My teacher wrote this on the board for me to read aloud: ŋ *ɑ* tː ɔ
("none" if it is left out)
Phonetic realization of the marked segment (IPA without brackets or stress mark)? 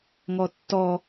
ɔ